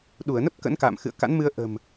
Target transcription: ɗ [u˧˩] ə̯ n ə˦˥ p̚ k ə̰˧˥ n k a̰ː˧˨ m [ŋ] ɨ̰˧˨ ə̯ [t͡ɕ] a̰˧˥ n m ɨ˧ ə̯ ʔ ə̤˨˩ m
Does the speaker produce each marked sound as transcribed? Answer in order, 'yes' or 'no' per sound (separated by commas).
yes, no, no